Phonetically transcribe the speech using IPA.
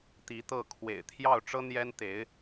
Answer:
t̪ i˧˥ t̪ ɤ˥˩ kʰ w ḛ˨˩ ɪ̯ t̪ʰ j ɑ˥˩ ʊ̯ ʈ͡ʂ ɤ˥ n̪ j ɛ˥ n t̪ e˧˥ ɪ̯

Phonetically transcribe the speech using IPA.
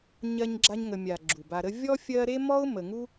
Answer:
ɲ ɜ˦ ɲ ɡ͡ǁ a˦ ɲ ŋ ə˨ mʲ a˩ ɡ͡ǁ u˩ b a˨ ɾ ə˦ vʲ ɔ˥ fʲ ɜ˦ ɾ e˥ m ɔ˥ ʊ̯ m ə˨ ŋ u˥

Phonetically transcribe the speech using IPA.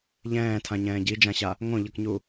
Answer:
ʎ ɛ̃ː tʰ ã ɲ ɛ̃ː ɟ i d͡ʒ ã ɕ a | ŋ õ ʎ ʌ k ɲ u

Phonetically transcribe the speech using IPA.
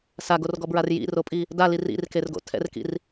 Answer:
s a ɡ o r ɡ ɔ b ɹ a r j ḭ r o pʼ i | d a l i r ḭ r k e r ɡ o̰ tʰ ɛ̰ r k ḭ r

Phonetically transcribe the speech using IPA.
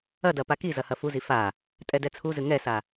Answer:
ɐ d ɐ p a k i z ɐ h ɐ f u z i f a | tʼ ɛ d ɛ t͡sʰ u z ɨ ŋ ɛ s a

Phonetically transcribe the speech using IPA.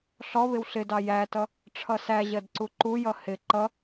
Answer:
ɬ ɔ β ɪ w ɬ ɪ d ɑ j æ t ʌ | ʈ͡ʂʰ ʌ s æ ʑ ɜ d ǀ u ǃ u j ʌ h ɪ ǃ ʌ

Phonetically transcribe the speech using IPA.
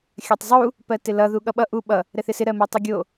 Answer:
xʲ ɜ tˤ zˤ u | p ɜ t ɪ l ʌ ð u ɠ ʌ ɓ ʌ ʔ u ɓ ʌ | ɾ ɛ θ ɪ s ɪ ɾ ɜ m o tˤ u ɡʲ o

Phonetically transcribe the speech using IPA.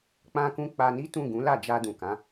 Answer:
k͡p ã˧ k ũ˧ k͡p a˧ n i˦ t ũ˦˨ ɡ ũ˨˦ l a˦˨ d͡ʒ a˧ d ũ˨ k ã˨˦

